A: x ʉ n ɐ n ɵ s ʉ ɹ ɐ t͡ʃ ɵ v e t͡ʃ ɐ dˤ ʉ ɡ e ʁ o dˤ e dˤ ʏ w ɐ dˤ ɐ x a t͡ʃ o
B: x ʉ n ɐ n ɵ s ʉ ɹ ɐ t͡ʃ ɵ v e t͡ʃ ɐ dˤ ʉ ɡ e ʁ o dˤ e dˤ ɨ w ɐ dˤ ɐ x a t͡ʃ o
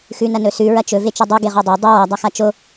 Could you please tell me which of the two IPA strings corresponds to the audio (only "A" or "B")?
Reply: B